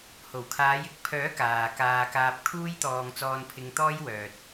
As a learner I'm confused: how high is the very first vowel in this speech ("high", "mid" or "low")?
mid